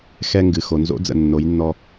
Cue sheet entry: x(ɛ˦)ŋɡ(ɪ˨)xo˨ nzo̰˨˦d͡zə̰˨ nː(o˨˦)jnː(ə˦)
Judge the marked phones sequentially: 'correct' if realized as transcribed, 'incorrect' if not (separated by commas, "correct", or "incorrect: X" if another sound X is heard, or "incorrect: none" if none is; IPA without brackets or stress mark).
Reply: correct, incorrect: ɨ˨, correct, incorrect: ɔ˦